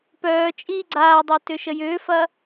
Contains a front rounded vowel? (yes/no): yes